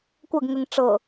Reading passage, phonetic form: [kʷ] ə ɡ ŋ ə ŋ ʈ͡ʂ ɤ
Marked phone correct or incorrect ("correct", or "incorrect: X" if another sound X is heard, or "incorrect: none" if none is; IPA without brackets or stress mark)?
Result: correct